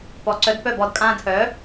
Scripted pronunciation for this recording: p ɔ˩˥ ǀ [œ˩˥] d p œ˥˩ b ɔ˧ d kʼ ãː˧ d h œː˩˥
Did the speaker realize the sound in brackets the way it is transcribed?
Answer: yes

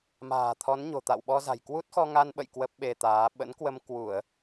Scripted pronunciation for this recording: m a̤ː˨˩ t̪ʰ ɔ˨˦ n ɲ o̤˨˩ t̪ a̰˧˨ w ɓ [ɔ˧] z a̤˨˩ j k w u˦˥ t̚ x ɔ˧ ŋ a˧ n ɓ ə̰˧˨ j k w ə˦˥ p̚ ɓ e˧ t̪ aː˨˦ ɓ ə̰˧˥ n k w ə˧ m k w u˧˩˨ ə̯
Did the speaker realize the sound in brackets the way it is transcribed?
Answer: yes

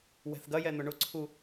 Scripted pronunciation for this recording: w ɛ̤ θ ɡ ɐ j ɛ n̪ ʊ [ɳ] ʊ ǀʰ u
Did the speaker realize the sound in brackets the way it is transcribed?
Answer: yes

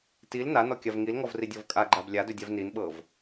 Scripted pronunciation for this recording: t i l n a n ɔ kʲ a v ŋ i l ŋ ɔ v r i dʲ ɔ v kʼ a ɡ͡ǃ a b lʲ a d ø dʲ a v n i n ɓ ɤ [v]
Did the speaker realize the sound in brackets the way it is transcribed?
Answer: yes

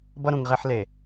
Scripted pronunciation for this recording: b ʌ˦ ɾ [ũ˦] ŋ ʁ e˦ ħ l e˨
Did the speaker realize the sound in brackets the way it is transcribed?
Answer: no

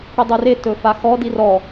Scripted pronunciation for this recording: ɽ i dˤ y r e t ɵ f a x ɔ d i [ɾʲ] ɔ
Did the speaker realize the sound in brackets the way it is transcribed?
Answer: no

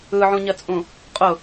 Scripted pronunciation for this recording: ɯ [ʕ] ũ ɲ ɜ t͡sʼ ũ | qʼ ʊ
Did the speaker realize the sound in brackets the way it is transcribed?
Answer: yes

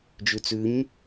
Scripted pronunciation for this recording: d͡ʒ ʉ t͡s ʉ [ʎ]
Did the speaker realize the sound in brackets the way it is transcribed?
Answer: no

